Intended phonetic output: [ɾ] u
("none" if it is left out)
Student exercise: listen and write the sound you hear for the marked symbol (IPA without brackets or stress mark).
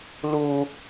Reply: l